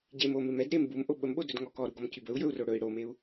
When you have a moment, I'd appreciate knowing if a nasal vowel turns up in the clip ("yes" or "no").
no